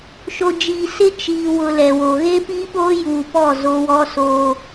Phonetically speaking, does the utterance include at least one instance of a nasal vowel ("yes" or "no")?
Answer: no